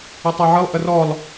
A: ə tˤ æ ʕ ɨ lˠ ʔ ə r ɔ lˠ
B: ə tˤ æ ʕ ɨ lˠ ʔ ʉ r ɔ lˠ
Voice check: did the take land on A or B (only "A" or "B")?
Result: A